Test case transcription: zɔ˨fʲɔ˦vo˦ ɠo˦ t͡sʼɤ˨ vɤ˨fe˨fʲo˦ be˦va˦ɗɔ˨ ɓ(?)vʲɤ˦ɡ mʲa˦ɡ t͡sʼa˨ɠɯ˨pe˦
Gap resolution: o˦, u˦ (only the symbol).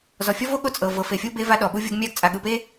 u˦